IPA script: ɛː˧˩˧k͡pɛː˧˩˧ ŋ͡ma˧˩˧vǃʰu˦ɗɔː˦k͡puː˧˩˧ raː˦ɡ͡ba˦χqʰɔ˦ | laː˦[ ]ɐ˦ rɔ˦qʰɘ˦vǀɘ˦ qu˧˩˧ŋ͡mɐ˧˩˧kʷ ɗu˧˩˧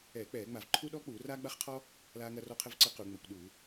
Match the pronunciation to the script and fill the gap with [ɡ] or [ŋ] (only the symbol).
ŋ